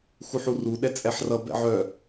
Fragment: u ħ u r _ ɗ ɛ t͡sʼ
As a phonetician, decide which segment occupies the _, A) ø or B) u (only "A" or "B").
B